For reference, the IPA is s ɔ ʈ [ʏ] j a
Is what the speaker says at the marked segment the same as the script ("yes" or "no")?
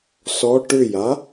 yes